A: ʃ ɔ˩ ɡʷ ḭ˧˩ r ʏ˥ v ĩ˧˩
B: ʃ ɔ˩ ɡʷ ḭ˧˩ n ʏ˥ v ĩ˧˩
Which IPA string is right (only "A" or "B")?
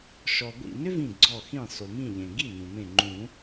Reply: B